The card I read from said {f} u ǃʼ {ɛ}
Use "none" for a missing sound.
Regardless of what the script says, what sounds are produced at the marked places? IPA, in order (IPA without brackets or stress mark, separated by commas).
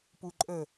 p, ə